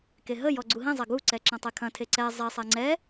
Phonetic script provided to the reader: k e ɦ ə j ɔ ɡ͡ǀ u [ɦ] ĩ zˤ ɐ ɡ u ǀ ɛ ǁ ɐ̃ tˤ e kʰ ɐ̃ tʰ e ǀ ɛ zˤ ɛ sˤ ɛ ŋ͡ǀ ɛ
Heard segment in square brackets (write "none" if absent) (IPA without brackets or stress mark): ɦ